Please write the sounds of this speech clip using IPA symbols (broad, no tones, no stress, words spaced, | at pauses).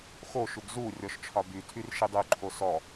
xoʃuɡ zu rʲɔʃt͡ʃʰɒbytʰyr ʃidˤʉǃʰo sɔ